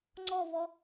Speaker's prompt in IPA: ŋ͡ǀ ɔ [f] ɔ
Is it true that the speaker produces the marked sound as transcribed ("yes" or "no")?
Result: no